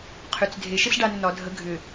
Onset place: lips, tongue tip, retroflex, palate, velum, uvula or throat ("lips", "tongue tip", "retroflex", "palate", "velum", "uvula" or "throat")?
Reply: uvula